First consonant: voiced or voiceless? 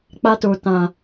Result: voiceless